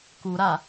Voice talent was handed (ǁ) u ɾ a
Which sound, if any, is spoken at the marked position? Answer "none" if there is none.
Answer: k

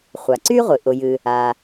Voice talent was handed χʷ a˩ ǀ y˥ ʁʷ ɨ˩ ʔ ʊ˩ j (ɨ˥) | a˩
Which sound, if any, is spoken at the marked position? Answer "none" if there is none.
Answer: ɨ˩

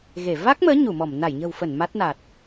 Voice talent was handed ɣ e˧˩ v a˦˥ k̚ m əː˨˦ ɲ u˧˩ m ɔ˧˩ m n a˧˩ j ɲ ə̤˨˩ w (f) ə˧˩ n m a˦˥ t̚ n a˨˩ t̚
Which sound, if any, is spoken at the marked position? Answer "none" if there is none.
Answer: f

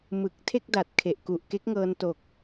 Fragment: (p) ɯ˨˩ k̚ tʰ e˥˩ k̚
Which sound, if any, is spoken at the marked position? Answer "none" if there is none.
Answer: m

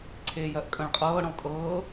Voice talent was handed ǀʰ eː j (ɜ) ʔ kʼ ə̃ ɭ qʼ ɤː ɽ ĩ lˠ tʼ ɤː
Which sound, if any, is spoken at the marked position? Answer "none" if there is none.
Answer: ɜ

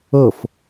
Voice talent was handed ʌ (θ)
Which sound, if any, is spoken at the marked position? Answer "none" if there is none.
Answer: f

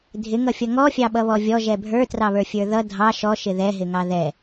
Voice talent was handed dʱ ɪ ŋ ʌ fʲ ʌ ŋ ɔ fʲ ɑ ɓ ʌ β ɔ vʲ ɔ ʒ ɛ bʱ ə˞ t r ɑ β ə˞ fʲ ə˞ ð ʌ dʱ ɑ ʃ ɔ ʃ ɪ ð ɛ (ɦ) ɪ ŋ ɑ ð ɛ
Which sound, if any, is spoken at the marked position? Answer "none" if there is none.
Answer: ɦ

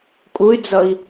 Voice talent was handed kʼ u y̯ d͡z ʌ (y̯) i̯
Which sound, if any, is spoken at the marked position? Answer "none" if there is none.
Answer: none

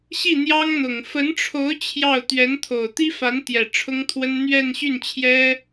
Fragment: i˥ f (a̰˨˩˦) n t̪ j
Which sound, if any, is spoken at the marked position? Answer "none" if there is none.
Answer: a˧˥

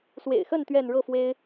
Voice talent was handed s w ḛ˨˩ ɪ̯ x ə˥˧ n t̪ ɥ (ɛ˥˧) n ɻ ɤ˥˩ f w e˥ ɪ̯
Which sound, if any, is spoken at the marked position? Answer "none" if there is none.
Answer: ɛ˥˧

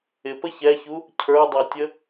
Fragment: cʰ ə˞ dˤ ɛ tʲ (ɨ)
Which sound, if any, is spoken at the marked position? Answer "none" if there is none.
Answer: ə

